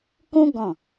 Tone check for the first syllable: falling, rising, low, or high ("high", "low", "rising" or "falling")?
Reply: high